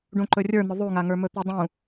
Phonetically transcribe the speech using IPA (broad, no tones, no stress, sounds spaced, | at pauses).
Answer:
ɖ ũ ǃ ɵ rʲ ə˞ n̪ ʊ ðˤ u ŋ a ŋ ə˞ m ɵ t̪ u dˤ ũ